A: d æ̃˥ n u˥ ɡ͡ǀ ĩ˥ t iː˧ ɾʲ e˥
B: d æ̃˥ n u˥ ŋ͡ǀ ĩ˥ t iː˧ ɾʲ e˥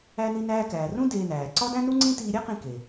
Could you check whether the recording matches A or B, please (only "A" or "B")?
B